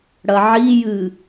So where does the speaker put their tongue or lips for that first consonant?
retroflex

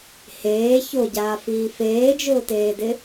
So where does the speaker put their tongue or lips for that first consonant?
throat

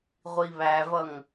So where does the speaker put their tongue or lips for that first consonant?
uvula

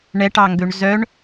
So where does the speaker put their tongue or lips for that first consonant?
retroflex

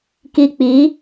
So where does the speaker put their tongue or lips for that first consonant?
velum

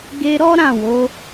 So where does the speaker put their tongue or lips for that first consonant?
velum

